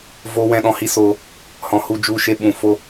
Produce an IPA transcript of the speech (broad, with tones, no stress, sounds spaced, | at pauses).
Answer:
v o˧ w ɛ̃˧ ɗ ɔ̃˨ h i˦ s o˧ | h ɔ̃˨ h u˦˨ d͡ʒ u˧ ʃ e˧ ɓ ũ˨ f o˦